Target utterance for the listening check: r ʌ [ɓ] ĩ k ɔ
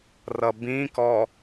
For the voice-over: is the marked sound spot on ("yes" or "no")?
no